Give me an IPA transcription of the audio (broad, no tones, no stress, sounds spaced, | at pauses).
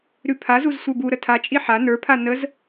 ɾ ʉ pʰ a z u z sʷ ə˞ b u ɾ ə tʰ a t͡ʃʼ i ħ a n ə˞ pʰ a n ə z